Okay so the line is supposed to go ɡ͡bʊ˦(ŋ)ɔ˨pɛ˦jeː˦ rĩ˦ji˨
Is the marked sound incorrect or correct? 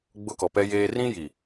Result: incorrect